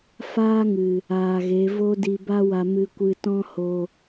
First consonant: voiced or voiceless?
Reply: voiceless